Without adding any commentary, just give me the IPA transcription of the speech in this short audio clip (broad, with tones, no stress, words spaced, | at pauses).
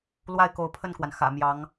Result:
lwa˥˩ɪ̯ ko˧˥ʊ̯pʰə˥˩nkwa˩n xä̰˨˩ mjɑ˧˥ŋ